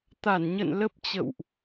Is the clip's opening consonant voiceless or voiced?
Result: voiceless